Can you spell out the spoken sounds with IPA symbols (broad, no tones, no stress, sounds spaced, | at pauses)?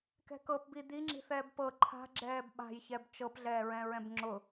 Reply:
k ɛ̤ k ɤ p b i d̪ i ŋ͡ǁ i̤ θ ɛː b p ɤ ǃʰ a̤ ɡ͡ǁ ɛː b ɓ a̤ j ç ɛ b t͡ʃ ɤ p ɮ ɛː ɹ ɛ̃ ɹ ɛ̃ b ŋ͡ǁ ʊ